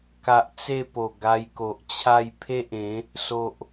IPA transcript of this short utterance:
k a˨ ʔ t͡s e˥˧ p o˨˩ ɡ a˧ j k o˨ ʔ t͡ɕʰ a˥˧ j pʰ e˦ ʔ ẽ˨˦ | s o˨ ʔ

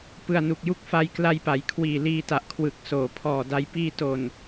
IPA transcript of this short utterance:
p ɯ˨˩ a̯ n u˨˩ k̚ j u˦˥ k̚ f a˧ j k l a˧ j p a˩˦ j kʰ w iː˨˩ l iː˧ t a˨˩ ʔ kʰ w ɯ˨˩ k̚ s oː˩˦ pʰ ɔː˨˩ d a˧ j p iː˧ t o˨˩ n

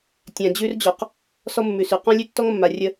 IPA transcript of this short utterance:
tʲ ã˨ d͡ʑ ʉ˦ r d͡ʑ ɔ˨ q | s ɔ˦ mː ʉ˨ s ʉ˨ q ɔ̃˦ lʲ ʉ˦ tː ɔ˦ ŋ mː a˨ rʲ ə˦

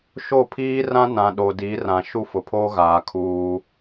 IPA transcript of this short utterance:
ʃ o˦˨ pʰ iː˦ r ã˦ n ã˨ ɗ o˨ d i˨˦ r ã˨ ʃ u˦ f ʊ˨ pʰ oː˦ ɣ aː˨ kʰ uː˦

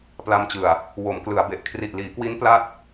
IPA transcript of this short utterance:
p l a˧ m t͡ɕ ɯ˨˩ a̯ | w o˩˦ m k l ɯ˩˦ a̯ b e˨˩ ʔ kʰ r i˨˩ ʔ l iː˩˦ k w i˦˥ n p l a˥˩ t̚

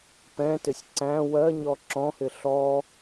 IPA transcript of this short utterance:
p ɛ̃ t ɪ sʲ ǀ æ̃ w ɜ ɲ ɔ ǁ ɔ̃ h ɪ ɬ ɔ

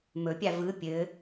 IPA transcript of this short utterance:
m ɵ pʲ a v ɯ pʲ ɘ

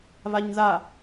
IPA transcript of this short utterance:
β a ɲ ð a

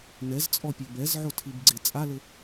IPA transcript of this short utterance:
n ɛ z t͡sʼ ɔ pʲ ɘ b ɛ z ʕ o tʰ i b ɡ͡ǀ e t͡sʼ a l ɘ

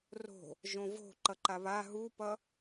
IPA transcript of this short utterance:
r o̤ | ʒ õ v o̤ ǃ ʌ ǃ a β a ɦ u p ʌ

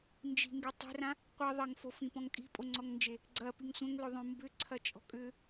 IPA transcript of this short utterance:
n d͡ʒ i̤ ŋ ɡ y tˤ e̤ r ã | qʷ i ðˤ ɐ ŋ f o f ĩ p ɔ̃ ŋ kʼ i̤ pʼ o ŋ͡ǀ ɔ ŋ n d͡ʒ e | ɡ͡ǀ ɐ p i ŋ sʷ ɐ̃ ŋ l ʏ ðˤ õ m b ʏ ǀʰ ɐ t͡ʃʼ ɔ̤ kʼ ʏ

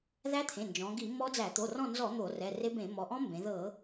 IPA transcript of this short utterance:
ð æ˦˥ t̪ʰ ẽ˩˧˩ n d͡ʒ ɔ̃˩˧ ɡ i˧˩˧ m ɔ˦˥ d͡z æ˧˩˧ t̪ o˩˧˩ r ɔ̃˦˨ n z ɔ˧˩˧ n̪ o˧˩˧ r ɛ˩˧˩ r e˦˥ b ẽ˧˩˧ m ɔ˩˧ ʔ ɔ̃˦˥ m b ẽ˩˧ ð ɤ˧˩˧

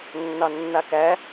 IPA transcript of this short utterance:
nː ɑ nː a k æ

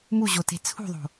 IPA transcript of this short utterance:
m u ʑ o t e̤ t͡sʰ ṳ ðˤ o̤

